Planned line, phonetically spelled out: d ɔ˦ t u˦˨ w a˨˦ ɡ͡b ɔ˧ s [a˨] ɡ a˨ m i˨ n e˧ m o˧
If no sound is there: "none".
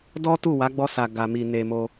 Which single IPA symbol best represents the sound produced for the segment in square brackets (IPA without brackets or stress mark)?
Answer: a˨